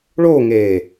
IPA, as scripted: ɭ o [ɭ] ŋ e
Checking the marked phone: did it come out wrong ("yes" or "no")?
yes